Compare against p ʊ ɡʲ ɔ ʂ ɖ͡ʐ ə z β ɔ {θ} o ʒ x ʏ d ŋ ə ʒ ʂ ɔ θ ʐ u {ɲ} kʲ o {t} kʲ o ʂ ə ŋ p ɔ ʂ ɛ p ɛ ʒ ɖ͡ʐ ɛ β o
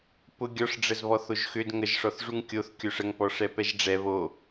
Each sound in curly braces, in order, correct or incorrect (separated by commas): correct, incorrect, incorrect